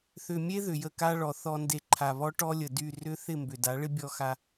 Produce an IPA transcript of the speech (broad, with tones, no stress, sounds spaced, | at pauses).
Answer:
θ ʏ˨ mʲ e˦ ð ʏ˨ j ə˦˨ k a˦ ɭ ɔ˨ θ ɔ˨ n d e˨ ǃʰ a˨ β ɔ˦ ʈ ɔ˦ lʲ ə˨ d y˦˨ r ʏ˦ θ ɪ˦˨ m b ʏ˨ d a˨˦ ɭ ɪ˦ bʲ ɔ˦ x a˦